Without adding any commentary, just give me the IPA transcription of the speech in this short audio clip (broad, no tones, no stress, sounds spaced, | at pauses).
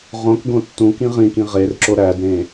ʁ õ k ɡ õ tː ũ k ĩ ʁ ĩ k ĩ ʁ e r ǁ o ɾ æ d ɾ ẽ